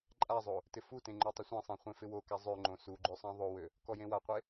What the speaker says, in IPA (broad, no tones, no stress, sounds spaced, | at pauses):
ǃʼ a zˤ o | t ɪ f u t ẽ ŋ͡ǃ ø tˤ ɪ sʷ ẽ sˤ ɑ̃ χʷ ẽ f ɪ w o k a zˤ ø ŋ͡ǃ õ s u ɡ͡ǃ ø sˤ ɑ̃ ðˤ o w ø | k ɔ j ẽ w a qʷ e